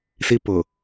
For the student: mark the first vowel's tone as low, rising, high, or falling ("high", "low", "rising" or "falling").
high